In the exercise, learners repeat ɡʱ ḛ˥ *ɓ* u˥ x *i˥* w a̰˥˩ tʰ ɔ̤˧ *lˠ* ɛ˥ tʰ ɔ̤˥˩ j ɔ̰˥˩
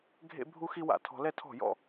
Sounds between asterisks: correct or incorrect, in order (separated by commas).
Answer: incorrect, correct, incorrect